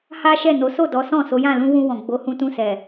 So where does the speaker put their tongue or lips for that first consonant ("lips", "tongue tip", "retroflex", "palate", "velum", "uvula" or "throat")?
throat